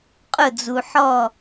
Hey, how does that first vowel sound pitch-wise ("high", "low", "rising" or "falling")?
falling